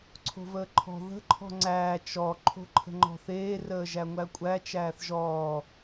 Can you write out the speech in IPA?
ǀʰo̤vəːǃʰɔ̤ ðə̤ ǃʰɔ̤ŋ͡ǀæː t͡ʃɔ ǃʰo̤ǃʰə̤ŋ͡ǃɔ̤θeː rəːʒæŋʷækʷʼæ t͡ʃæːθʒɔː

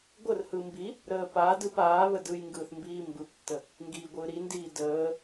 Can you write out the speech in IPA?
ɡʷərhɯ mbi | ɾəːpadɯp aːβə dɯjŋɡɯːθ mbiːmbɯptːə | ŋɡiːɡʷɯːɾindiː dəː

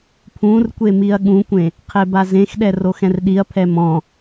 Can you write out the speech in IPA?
pʰũr kʷemiɐ̯ɠũkʷẽ | qʰebazẽxɗɛ roxɛ̃rɗiɐ̯pʰɛ mɔ̃

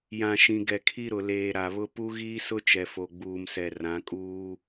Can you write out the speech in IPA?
jã˨ʃĩ˨ ɡɛ˨kʰi˦ɾʊ˨ leː˨ ɾa˨βʊ˦ pu˦ɣiː˦sʊ˦ t͡ʃɛ˨fo˨ɡ͡buː˨msɛ˨ rã˨˦kʼuː˦

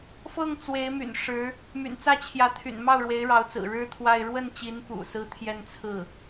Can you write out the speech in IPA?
fɤ˥˩ŋ t͡swe˧˥ɪ̯my̰˨˩n ʂɻ̩˧˥ | my̰˨˩nt͡sä˥˩t͡ɕʰjä˧˥t̪ʰy̰˨˩n mɑ˥˩ʊ̯ɻwe˧˥ɪ̯ɻɑ˧˥ʊ̯t͡sɹ̩˨˩ ɻɻ̩˥t̪ʰwa˥˧ɪ̯ ɻwə˥˩nt͡ɕi˧˥npṵ˨˩ sɹ̩˥t̪ʰjɛ˥˧nt͡sʰɹ̩˥˩

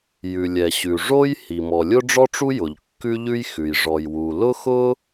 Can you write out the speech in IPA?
jʉ˩lʲɛ˩ɕʉ˩ʐo˥j hi˩ mɔ˩lʲʊ˥ɖ͡ʐɔ˥ʈ͡ʂu˥ jʊ˩ʎkːʉ˥ʎʉ˥jxʉ˩j ʐɔ˩jwu˩lʊ˥xʊ˥

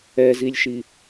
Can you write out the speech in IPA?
ɛzilʲʃi

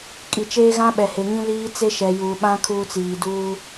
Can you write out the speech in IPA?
kʼi˨t͡ʃeː˦ɣã˦ ɓɛ˨he˨ŋĩ˦liː˦ t͡se˦ʃɛ˨juː˨ɓã˦ kʰuː˦t͡siː˨ duː˦

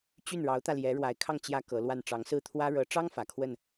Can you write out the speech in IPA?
t͡ɕy˥˩nɻɑ˧˥ʊ̯t̪ä˧ljɛ˧˥ ɻwa˧˥ɪ̯kʰɑ˥˩ŋ t͡ɕjä˥kɤ˧˥lwa˥˩n ʈ͡ʂɑ˧˥ŋsɹ̩˥˩t̪ʰwä˥ ɻɤ˧˥ʈ͡ʂɑ˥ŋ fä˨˩kʰwə˥˩n

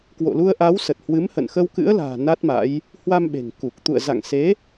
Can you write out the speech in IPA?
kwo̰˧˨lu˧ə̯ʔa˨˦w sə˨˩t̚hwɨ˨˦mhə̰˧˨n xə˧wkɨ̰˧˥ə̯la̤ː˨˩ na˦˥t̚ma̰˧˥j | hwa˧mɓe̤˨˩ŋku˨˩k̚ t̪ṵ˧˨ə̯za̰˧˨ŋse˨˦

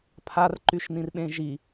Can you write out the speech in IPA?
pʰarǃyʃnĩrɓẽ ʒi

